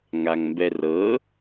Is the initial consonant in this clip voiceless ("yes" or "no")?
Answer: no